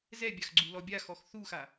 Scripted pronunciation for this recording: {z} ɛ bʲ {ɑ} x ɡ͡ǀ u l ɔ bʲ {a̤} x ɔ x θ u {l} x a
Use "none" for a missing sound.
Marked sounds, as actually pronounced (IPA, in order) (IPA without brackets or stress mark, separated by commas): z, a, a, none